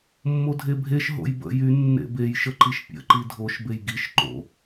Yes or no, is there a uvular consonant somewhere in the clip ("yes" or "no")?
no